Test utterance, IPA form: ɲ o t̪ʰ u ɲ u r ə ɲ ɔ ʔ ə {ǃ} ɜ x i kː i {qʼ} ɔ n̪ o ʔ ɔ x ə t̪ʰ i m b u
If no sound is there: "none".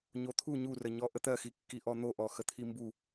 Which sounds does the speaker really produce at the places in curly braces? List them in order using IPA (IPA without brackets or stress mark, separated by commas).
t̪, ʔ